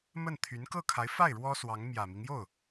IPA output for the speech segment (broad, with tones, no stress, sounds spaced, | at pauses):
m ə˥˩ n t̪ʰ y˧˥ n k ɤ˥˩ kʰ a˧˥ ɪ̯ f a˥˩ ɪ̯ ɻ w ɔ˥ s w ɑ˧˥ ŋ m j ä˨˩ m i˦ ŋ j o˥˩ ʊ̯